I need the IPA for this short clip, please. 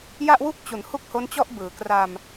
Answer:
j a˥˩ ʔ w u˥˩ k̚ t͡ɕ u˩˦ n h u˥˩ k̚ h o˦˥ n t͡ɕ ɔ˥˩ ʔ b ɯː˩˦ k r a˧ m

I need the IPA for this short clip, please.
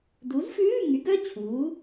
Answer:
d u˨˥ z f ʉː˧˥˧ ŋ y˨˥ ɡ œ˧˥˧ t͡ɕʰ uː˨˥

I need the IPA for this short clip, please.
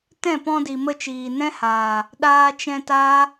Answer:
t ɛ̃˦˨ p ɔ̃˧ d i˨ m ə˧ t͡ʃ iː˨ n ɛ̃˦ h aː˨ | ɗ aː˧ t͡ʃ ɛ̃˧ t aː˦

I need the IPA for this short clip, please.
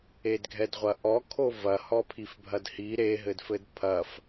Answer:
e d ɡʱ ɛ d ʁʷ ɐ ʔ ɔ kʰ o v ɐ h ɔ pʰ i f bʱ ɐ d h i ɾ e ɦ ɘ d f ɘ d pʰ ɐ f

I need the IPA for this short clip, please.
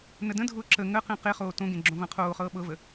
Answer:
n ə d ə̃ dʱ ʊː ǁ ə ŋ ə q ẽ q e χ oː t õ ɡ ẽ ɡ͡ǁ õ v ɐ̃ qʰ oː χ ɤː ɓ ɤ v ə

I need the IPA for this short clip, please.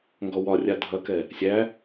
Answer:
ŋ ɡ ɔ w ɒ rʲ a dʱ ɐ k ɛ | sʲ æ

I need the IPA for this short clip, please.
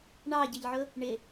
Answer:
ɳ ɑ ɟ ɪ ʎ ʕ ʊ | ɳ ɪ

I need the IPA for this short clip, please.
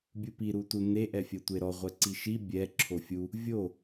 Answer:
bʲ u p i ɾ u t u n e ʔ ɛ fʲ ɜ tʷ e ɾ ɔ ʁʷ ɛ ǀ i ʃ i bʲ ɛ ǁʰ o fʲ u | vʲ o

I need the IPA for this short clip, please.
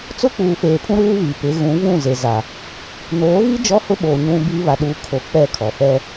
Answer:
t͡s ʊ˦ k͡p uː˨ f eː˨ pʰ ũ˦ ɾ uː˦ β iː˨ p ɪ˨˦ ɣ ũ˨˦ v ũ˦˨ z e˨ z a˨ | n oː˨˦ ɣ i˦ d͡ʒ ɔ˦ h ʊ˦ ɓ oː˨ ɲ ũ˦ b iː˦ β a˨ ɗ uː˨ kʰ o˨ k͡p ɛ˦˨ kʰ ɔ˨ f ɛ˦

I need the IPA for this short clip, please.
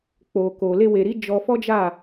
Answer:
k͡p o˨ k o˨ l e˧ w e˨ ɾ i˨˦ d͡ʒ ɔ˧ f ɔ˦ d͡ʒ a˦˨

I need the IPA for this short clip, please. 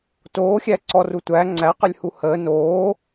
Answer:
t oː xʲ æ ǀ ɔ r u tʷ æ ŋ͡ǀ æ q ə lʲ h u h əː n oː

